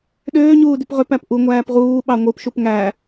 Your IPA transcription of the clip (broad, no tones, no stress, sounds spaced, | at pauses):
ɗ øː ɲ uː d y p ʁ ø p æ p ʔ u ŋʷ æː p ʁ uː ɓ ɑ ŋʷ ɯ p ʃ u p ŋ æ